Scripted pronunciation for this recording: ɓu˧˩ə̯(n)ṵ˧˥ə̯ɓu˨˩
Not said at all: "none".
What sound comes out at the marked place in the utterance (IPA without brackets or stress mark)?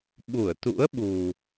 t̪